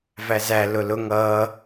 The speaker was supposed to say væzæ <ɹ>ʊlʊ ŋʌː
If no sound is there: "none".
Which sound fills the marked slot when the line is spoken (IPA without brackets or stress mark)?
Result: l